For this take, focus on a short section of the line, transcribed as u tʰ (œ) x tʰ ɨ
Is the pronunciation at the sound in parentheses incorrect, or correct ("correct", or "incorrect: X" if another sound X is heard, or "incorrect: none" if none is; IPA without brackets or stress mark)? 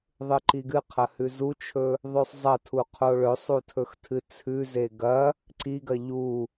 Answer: incorrect: ɵ